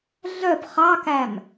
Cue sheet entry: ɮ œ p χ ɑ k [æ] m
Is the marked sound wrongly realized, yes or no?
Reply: no